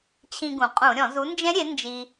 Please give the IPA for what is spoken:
t͡ɕʰ ĩ˧ ɡ ũ˩ qʼ ũ˧˩˧ ɾʲ ɔ̃˧˩˧ z u˨˥ n d͡ʒ ɛ̃˦˥ ɾʲ e˨˥ n d͡ʒ i˧

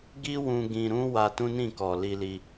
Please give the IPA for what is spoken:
ɡ i˦ w ũ˧ ɡ ĩ˧ ɾ ũ˦ w a˧ t ũ˦ n ĩ˦˨ k ɔ˨ l i˧ l i˧

